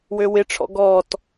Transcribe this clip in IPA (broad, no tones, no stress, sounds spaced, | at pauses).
w ø w ɪ ʈ͡ʂʰ ɔ̰ ɡ ɔ t